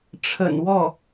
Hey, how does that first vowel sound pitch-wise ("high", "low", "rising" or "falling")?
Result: low